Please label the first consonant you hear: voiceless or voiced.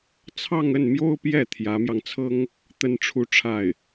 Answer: voiceless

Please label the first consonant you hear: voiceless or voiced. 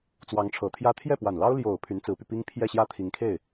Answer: voiceless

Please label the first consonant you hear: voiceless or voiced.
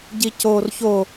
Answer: voiced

